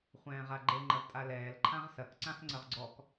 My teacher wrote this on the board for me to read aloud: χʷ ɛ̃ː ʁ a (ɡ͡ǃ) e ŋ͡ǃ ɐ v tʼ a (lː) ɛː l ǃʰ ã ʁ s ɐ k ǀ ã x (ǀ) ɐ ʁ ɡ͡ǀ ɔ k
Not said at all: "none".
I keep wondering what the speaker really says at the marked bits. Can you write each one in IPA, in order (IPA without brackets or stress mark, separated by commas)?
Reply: ɡ͡ǃ, l, ŋ͡ǀ